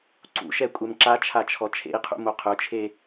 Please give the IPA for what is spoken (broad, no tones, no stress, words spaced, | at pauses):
ǀṵʃɛkʷʼɛm ǁat͡ʃʰat͡ʃʰɔ t͡ʃʰḛi̯qʰṵmo qʰʊt͡ʃʰe